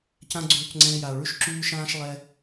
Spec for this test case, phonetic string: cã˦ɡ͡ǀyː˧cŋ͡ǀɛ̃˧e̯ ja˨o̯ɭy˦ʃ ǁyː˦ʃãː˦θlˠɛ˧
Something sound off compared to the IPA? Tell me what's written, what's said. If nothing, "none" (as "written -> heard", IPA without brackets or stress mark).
θ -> ʃ